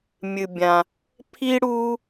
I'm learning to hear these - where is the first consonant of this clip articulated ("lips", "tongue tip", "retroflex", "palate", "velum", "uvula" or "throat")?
lips